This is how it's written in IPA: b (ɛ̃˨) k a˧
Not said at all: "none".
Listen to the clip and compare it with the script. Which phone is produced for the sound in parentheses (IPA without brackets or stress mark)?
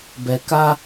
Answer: ɛ˨